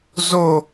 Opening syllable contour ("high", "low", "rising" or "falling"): falling